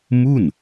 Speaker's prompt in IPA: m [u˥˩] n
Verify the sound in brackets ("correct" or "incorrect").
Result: correct